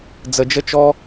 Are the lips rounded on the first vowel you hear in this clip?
no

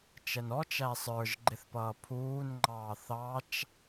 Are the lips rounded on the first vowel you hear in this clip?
no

